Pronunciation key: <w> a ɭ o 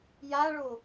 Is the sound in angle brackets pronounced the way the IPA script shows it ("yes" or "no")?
no